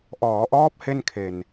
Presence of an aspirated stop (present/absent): present